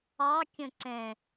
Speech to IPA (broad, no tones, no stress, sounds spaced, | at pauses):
ɑ kʲ ə̃ ǀ ɛ̃